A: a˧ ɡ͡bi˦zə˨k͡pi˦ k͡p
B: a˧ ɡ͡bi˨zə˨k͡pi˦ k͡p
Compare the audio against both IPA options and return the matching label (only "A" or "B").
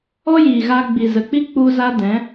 B